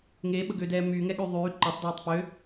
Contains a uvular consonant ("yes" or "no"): no